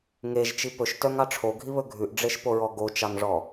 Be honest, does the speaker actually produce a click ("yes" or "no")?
no